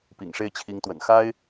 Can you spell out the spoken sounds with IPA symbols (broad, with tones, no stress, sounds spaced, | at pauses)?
p ḭ˨˩ ŋ ʂ e˥˩ ɪ̯ t͡ɕʰ i˧˥ ŋ t̪ w ə̰˨˩ n x a˥ ɪ̯